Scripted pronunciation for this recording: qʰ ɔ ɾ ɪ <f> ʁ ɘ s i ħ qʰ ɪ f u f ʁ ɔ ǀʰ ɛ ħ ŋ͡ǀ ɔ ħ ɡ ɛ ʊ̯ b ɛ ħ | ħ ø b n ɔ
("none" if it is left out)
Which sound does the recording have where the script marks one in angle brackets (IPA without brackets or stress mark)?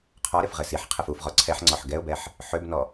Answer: f